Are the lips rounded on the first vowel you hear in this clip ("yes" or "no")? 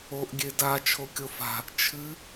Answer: yes